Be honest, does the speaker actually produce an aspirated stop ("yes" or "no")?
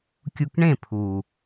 yes